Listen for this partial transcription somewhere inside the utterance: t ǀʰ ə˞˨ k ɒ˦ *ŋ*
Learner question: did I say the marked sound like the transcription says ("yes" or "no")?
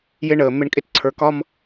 no